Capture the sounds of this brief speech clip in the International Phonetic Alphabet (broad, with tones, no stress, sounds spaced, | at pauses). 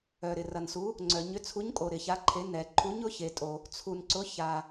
œ˨ ɾ ɪ˨ r ɐ˨ n s u˨˥ | ŋ͡ǀ œ˨ ɲ ʏ˨˥ t͡sʰ u˨˥ ɲ kʼ o˨ ɾ ɪ˨ ç a˨˥ ǃʰ e˨˥ n ɛ˨ ǃʰ u˨˥ ɲ ʊ˨˥ ç e˨ tʼ o˨ | t͡sʰ u˨ n ǀ ʊ˨˥ ç a˨